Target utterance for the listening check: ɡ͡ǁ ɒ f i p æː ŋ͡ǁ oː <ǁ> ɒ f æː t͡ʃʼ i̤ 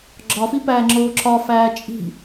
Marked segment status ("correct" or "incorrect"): correct